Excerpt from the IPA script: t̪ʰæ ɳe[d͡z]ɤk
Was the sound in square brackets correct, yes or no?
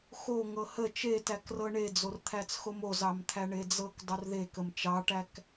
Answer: yes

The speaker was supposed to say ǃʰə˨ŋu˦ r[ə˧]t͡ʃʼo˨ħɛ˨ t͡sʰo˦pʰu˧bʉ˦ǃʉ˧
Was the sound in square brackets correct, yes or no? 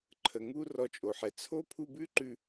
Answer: no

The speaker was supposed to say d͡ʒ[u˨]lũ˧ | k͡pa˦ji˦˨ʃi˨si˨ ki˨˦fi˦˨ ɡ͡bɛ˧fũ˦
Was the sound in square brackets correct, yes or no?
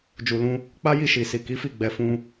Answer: yes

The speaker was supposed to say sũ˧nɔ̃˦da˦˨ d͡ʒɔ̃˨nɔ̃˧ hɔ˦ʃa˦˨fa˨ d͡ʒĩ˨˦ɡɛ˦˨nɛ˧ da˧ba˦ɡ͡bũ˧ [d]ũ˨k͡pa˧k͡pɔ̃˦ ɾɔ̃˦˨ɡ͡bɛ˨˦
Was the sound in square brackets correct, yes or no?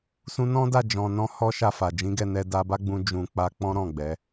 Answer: no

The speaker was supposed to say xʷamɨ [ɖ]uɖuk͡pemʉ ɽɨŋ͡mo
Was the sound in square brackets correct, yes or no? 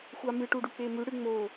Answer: no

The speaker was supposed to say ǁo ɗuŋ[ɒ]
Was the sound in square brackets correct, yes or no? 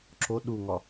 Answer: yes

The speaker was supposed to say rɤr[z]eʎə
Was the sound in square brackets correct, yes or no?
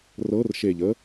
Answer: no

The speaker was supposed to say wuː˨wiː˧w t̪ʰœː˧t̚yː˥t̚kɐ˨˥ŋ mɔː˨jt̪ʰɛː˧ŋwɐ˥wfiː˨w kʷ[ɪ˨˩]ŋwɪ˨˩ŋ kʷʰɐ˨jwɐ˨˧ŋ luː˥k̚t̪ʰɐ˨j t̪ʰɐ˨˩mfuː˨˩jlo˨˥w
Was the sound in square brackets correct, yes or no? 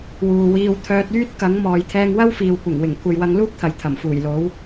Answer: yes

